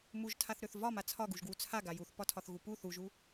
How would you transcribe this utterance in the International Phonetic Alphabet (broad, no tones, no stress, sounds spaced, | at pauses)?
m u ʒ tʰ a θ ɾ ø θ v ɒ m a t͡sʰ ɒ ɡ u ʒ ɡ w u t͡sʰ a ɡ a j u θ p ɒ tʰ ɒ θ ɣ u p u θ u ʒ u